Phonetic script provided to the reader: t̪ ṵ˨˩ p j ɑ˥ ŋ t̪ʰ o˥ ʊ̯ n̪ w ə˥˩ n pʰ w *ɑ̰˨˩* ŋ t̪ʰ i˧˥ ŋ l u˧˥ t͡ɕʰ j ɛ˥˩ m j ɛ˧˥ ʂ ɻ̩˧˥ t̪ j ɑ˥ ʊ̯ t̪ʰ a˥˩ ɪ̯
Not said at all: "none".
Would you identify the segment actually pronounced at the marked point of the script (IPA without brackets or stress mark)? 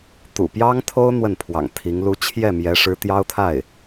ɑ̰˨˩